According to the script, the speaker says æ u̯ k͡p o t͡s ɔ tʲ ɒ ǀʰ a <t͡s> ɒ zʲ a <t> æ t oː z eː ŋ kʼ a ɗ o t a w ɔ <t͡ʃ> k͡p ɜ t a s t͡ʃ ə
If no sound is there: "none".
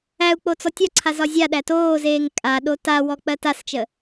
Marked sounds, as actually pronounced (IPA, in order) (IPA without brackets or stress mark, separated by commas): z, ɗ, none